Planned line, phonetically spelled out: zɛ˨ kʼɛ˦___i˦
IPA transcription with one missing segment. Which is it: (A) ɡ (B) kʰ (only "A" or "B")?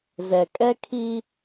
B